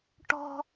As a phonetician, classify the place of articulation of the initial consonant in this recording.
retroflex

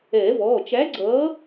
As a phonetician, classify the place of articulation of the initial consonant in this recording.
labial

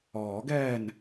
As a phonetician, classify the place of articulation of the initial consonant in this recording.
velar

